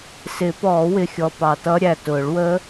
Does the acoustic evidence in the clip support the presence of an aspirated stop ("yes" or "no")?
no